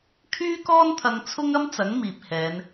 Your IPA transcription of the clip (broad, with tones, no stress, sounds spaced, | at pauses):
kʰ yː˥ k ɔː˥ n t̪ʰ ɐ˧ ŋ t͡sʰ ʊ˥ ŋ ɐ˥ m t͡s ɐ˨˥ ŋ m iː˨ p̚ h ɛː˨˧ n